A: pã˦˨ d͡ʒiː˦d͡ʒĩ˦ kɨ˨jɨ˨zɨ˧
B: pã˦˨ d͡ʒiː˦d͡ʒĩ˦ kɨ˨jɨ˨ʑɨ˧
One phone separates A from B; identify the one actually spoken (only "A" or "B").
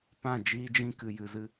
A